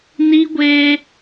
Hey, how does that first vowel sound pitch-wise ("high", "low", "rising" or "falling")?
high